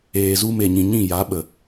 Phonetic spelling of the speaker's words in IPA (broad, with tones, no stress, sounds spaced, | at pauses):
eː˨ z u˧ m e˨ ɲ ĩ˨ ɲ ĩ˦˨ j a˨˦ ɓ ə˨